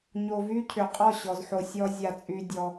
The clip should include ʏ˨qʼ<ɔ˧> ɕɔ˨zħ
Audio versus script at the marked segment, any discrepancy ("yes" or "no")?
yes